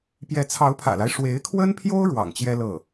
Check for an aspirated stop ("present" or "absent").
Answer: present